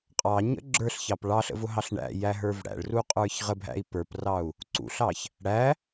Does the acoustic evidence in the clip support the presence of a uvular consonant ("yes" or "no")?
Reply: yes